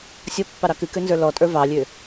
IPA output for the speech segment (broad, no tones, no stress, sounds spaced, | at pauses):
sʲ ɔ pː ɑ ɾ ɑ k ɨ k ø n z ə˞ l ɔ tʼ ə˞ v ɑ lʲ ø